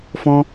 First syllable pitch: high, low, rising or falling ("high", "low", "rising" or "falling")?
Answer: high